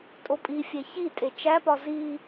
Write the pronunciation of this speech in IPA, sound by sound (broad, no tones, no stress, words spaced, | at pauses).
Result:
tʼopʼifʲe çitʼe t͡ʃæpɒ zi